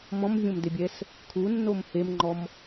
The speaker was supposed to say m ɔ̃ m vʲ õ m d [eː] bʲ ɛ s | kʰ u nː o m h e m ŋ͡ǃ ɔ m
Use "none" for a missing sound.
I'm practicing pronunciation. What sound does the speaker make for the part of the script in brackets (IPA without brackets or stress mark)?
e